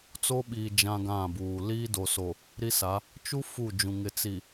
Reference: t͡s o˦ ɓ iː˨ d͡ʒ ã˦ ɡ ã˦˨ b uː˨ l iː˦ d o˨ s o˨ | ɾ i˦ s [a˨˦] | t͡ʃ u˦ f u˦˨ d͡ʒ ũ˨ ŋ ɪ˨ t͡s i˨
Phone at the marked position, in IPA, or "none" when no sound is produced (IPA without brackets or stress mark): a˨˦